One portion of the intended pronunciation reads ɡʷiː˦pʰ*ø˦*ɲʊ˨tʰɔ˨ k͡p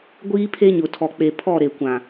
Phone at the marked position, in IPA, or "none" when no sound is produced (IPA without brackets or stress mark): e˦